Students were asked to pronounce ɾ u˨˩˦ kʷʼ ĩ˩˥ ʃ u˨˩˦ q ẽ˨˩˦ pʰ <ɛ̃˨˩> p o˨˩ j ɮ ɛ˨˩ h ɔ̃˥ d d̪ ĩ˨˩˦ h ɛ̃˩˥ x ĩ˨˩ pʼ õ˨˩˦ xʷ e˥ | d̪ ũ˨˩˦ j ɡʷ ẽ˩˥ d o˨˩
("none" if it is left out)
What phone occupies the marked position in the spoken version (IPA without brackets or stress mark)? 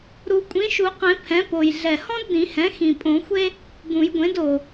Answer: ɛ̃˩˥